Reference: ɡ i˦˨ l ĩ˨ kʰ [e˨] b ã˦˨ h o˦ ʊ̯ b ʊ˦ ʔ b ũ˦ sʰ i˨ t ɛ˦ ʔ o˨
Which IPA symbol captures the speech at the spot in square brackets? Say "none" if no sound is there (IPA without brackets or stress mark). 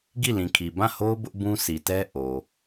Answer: i˨